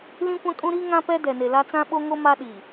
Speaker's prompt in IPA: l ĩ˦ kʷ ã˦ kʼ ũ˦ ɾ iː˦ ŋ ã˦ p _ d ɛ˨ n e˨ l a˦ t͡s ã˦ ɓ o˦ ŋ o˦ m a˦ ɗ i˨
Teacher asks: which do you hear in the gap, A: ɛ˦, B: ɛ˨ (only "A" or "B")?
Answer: A